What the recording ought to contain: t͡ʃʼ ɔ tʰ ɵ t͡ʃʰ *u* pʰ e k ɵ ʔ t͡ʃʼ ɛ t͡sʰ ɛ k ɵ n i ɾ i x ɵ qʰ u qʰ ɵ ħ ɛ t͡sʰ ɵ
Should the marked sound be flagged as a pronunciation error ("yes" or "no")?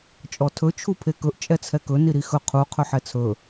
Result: no